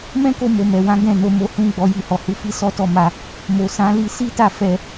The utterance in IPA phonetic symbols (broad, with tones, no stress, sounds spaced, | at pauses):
m ɛ̃˦ k o˧ m o˨ m ɛ˨ w ã˨˦ ɡ ɛ̃˦˨ n o˧ m o˧ h ũ˦ ɡ͡b ɔ˧ j i˧ h ɔ˨ h u˧ f i˦ s ɔ˦ t ɔ˦˨ m a˧ | m o˨ s ã˨˦ l i˧ s i˦ t a˦˨ f ɛ˧